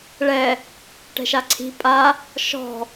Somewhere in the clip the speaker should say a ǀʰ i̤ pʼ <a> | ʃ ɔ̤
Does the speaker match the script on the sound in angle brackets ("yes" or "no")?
yes